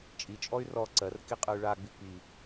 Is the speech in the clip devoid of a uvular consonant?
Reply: no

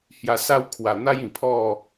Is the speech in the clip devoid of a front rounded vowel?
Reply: yes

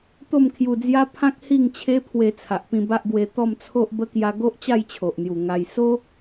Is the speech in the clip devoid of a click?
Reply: yes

